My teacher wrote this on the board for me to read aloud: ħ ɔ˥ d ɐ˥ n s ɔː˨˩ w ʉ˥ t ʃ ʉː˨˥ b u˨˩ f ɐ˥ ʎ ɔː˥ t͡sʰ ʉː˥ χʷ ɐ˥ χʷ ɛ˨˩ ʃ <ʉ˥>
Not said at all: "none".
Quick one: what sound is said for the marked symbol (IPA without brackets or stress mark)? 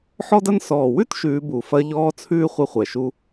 u˥